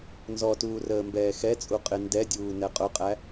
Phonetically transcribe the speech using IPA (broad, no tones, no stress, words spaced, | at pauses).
nzɔtuː rəːmbɛːxɛt͡sʼu qʼɪndɛdʲuː nɛqʼʊqʼæ